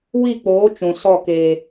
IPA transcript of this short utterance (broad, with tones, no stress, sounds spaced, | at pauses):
w i˦˨ k͡p oː˨˦ t͡ʃ ũ˨ s ɔ˦˨ k eː˧